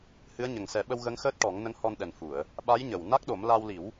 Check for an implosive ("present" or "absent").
present